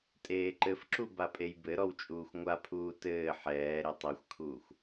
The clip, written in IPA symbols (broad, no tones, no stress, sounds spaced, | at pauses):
tʼ eː ǃ ɘ f ǁ u b a pʼ e j b ɘ ɾ ɔ w t͡ʃʼ uː xʷ ŋʷ a pʰ uː t ɘː ħ ɛː ɾ e tˤ i xʷ kʰ uː xʷ